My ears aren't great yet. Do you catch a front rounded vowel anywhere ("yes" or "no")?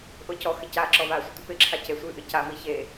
no